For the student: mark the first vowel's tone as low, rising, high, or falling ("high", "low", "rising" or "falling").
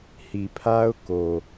low